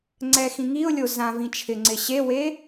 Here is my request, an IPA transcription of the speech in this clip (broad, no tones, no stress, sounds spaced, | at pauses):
ŋ͡ǀ ɛ x ĩ ŋ i ʊ̯ lʲ o z ã v ĩ t͡ʃʰ ɪ ŋ͡ǀ ɪ ɕ e w e